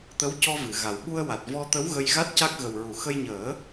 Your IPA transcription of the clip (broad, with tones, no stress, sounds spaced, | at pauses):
t̪ ə˧˥ w c ɔ˧ v ɨ˨˩˨ ɣ a˨˩ w ɓ u˧ ə̯ w a˨˩ t̚ v ɔ˧ t̪ ə˧˥ w ɣ ə˧ j ɣ a˦˥ t̚ c a˦˥ k̚ ɣ ə˨˩ w ɹ u˨˩˨ x ə˧ j ɲ əː˨˩˦